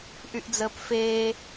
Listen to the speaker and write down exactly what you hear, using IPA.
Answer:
ʔ y ʔ d͡z əː p f eː

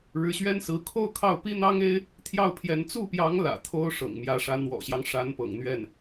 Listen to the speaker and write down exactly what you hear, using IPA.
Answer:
ɻ ɻ̩˧˥ ɕ ɥ ɛ˥ n s ɹ̩˧˥ kʰ o˥ ʊ̯ kʰ ɑ˥˩ ʊ̯ p i˥ n̪ ɑ˥ ŋ e˥ ɪ̯ | t̪ʰ j ɑ˥˩ ʊ̯ pʰ j ɛ˧˥ n t͡s u˥˩ p j ɑ˧˥ ŋ l ä̰˨˩ t̪ʰ o˥ ʊ̯ ʂ ɤ̰˨˩ ŋ m j ä˧˥ ʂ ä˧˥ n̪ w ɔ̰˨˩ ɕ j ɑ˦ ŋ ʂ a˧˥ n p ɤ̰˨˩ ŋ n̪ ɥ ɛ˥˩ n

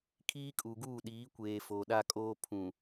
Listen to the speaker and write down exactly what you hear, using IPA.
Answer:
kʰ iː˦ kʼ u˨ ɡ uː˦˨ ɗ iː˨˦ kʷ eː˨ f o˨ ɗ a˦ kʼ oː˦ pʰ ũ˨

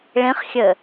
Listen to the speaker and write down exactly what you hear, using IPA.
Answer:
ɭ ĩ χ xʲ ɘ

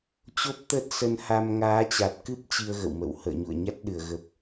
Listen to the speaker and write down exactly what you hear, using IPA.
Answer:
t͡ɕ o˦˥ p̚ t̪ ə˦˥ t̚ s ə˧ n h a˧ m ŋ aː˨˦ t͡ɕ a˨˩ t̚ k ɨ˦˥ p̚ t͡ɕ i˧ ə̯ ɣ ə̰˧˨ w m ə̰˧˨ w h ə̰ː˧˨ ɲ ṵ˧˨ ə̯ ɲ a˦˥ t̚ ɗ ɨ˧˩ ə̯ ɣ ə˨˩ p̚

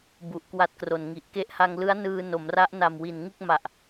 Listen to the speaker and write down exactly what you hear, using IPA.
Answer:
b u˨˩ ʔ k w a˦˥ t̚ k r o˨˩ n ŋ i˨˩ ʔ k e˦˥ ʔ h a˧ ŋ l ɯ˦˥ a̯ n ɯː˧ n o˩˦ m r a˦˥ ʔ n a˨˩ m w i˨˩ n ŋ ɯ˥˩ k̚ m a˨˩ ʔ

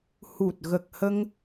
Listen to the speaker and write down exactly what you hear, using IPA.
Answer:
h u˨˩ t̚ ɣ ə˨˩ k̚ h ə˧ ŋ

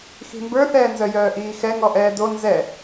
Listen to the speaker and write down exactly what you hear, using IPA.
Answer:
x i̤ m b ə˞ θ ɛː n z œ j œː ʔ iː x ɛ ŋ ɔ ʔ ɛː d o n z ɛ

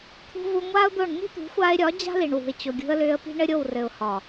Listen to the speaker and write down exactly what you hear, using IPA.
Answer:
t̪ʰ ṳ˧ v u˧ ŋʷ aː˦ ʊ̯ d̪ o˦˨ ɳ n i̤˦ t̪ ṳ˨˦ xʷ aː˧ ɪ̯ ɾʲ ɒ˨˦ d͡ʑ a̤˦ l i˨ ɳ w ṳ˨ ɪ̯ t͡ɕ o˨ ɡʲ ṳ˧ ə̯ l ʏː˧ ə̯ p i̤˦ ɳ ɘ˦ ɾʲ o˦˨ w r ɘ˨ ʊ̯ h ɒ˨

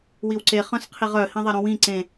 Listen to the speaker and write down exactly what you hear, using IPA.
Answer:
w i w ǀ e χ œ̃ s qʰ i ʁ œ h ĩ ðˤ e ɾ õ w ĩ ǀ ẽ

